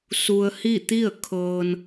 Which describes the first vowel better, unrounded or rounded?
rounded